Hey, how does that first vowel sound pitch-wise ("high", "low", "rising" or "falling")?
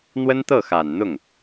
high